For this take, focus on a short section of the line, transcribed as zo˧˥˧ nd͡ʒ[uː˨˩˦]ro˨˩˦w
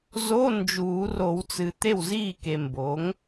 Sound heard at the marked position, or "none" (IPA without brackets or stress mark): uː˨˩˦